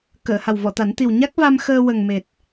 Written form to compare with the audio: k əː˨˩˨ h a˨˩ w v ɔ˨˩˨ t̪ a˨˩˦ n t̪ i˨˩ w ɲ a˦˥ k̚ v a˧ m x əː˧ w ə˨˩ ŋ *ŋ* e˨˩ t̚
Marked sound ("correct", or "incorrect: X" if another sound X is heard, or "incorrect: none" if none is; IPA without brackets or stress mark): incorrect: m